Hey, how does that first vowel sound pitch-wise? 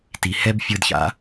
low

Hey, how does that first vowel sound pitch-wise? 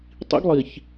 high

